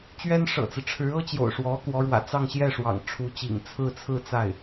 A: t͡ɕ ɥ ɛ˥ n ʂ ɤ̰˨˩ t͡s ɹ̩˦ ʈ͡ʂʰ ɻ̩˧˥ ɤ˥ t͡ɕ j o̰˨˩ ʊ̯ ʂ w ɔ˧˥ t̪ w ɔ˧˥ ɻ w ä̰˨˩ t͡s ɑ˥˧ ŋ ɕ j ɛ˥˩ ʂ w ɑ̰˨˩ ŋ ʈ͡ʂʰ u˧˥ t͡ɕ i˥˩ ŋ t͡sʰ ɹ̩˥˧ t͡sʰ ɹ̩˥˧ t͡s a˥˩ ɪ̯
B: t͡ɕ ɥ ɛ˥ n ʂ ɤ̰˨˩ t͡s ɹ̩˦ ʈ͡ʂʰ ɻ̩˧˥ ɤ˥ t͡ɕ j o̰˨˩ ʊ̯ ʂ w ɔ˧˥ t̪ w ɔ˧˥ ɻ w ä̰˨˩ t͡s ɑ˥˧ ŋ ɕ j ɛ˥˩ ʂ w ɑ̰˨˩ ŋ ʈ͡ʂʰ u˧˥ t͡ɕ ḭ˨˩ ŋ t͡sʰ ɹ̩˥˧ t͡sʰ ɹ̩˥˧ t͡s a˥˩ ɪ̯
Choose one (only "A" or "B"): B